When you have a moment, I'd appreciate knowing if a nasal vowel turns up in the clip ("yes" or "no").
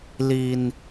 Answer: no